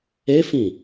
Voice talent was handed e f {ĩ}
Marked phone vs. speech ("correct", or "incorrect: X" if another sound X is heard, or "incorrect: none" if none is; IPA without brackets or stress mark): correct